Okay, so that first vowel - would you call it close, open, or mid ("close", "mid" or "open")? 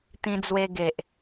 close